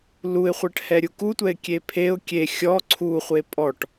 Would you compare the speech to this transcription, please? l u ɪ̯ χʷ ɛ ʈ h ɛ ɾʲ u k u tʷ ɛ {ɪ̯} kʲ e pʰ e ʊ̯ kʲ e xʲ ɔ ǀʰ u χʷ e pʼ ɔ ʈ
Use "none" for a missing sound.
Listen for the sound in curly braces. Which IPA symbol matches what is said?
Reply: ɪ̯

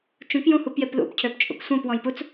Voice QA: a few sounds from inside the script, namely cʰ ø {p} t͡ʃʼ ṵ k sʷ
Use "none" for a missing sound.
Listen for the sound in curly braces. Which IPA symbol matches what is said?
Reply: p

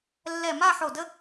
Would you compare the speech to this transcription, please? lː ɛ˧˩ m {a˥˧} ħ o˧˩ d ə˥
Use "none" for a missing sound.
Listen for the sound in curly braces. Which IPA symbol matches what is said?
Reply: a˥˧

